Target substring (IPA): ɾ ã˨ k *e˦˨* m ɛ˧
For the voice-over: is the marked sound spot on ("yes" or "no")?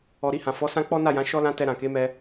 no